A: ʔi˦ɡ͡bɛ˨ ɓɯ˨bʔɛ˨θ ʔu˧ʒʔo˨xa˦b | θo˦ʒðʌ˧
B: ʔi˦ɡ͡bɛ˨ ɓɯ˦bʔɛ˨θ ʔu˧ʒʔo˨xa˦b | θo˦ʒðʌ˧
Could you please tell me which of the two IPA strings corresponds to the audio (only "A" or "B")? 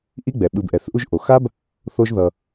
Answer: A